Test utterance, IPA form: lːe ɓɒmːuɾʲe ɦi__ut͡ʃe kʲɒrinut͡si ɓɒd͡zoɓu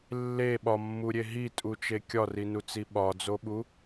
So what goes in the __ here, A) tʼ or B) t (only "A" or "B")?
A